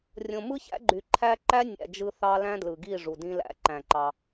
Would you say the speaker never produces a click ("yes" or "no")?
no